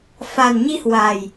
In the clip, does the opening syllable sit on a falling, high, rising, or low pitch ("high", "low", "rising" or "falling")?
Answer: low